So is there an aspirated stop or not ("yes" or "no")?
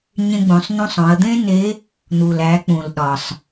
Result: no